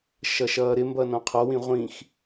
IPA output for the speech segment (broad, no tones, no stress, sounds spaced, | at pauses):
ʃ ʌ ʃ ʌː ɾ ɪ m b ʌ n ɔ̃ qʰ ɔ w ĩ ʁʷ ĩ x